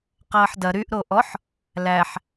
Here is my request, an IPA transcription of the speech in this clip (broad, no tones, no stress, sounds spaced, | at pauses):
q ɐː ħ d ɐ ɾ y ʔ ɾ o ʔ ɔ ħ | l æ ħ